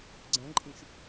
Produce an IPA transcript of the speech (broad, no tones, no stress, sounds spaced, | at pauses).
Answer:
ɡ͡ǀ ɐ̃ ǃʼ ĩ ʃ